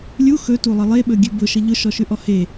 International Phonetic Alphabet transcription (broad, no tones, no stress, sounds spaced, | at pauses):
lʲ u x ɵ t u lˠ ə lˠ e ɓ ɵ ɡʲ ʉ b ʊ ʃ ə ʎ ʊ ʃ ɔ ʃ ʉ ʔ ɔ h e